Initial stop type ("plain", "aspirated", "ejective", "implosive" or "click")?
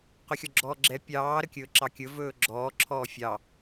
plain